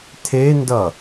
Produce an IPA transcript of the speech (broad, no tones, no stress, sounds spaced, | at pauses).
tʰ e n d ʌ